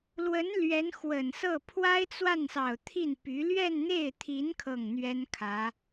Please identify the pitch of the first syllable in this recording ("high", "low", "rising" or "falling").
rising